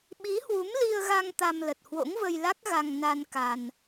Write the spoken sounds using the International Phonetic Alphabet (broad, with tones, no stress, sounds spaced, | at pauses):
ɓ i˨˦ h w u˨˦ m l i˧ ə̯ ɣ a˧ ŋ t̪ a˧ m l ə˨˩ t̚ h w o̰˧˥ ŋ v ə˧ j l a˦˥ k̚ ɣ a˧ ŋ n a˧ n k a˧ n